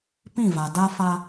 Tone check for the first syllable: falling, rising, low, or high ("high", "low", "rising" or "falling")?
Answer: falling